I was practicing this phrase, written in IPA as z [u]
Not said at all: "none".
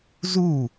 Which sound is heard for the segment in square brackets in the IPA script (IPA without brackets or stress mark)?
u